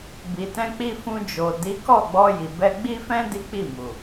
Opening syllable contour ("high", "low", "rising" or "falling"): low